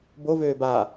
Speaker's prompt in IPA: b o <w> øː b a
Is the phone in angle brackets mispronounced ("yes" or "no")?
yes